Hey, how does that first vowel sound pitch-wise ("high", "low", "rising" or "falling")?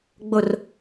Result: falling